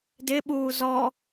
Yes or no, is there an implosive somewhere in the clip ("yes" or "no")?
yes